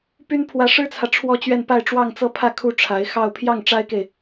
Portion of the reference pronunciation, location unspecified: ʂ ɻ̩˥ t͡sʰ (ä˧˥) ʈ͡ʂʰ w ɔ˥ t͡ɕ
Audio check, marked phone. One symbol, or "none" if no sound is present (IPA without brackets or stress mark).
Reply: ä˨